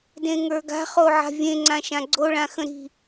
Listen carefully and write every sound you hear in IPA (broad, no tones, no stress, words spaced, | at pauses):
dẽŋə˞ɡa̤ χoʕa̤vʲẽ ŋ͡ǀãʃãɡ͡ǀo ɭãxə̃ɾi̤